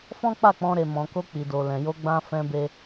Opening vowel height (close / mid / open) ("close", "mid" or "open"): mid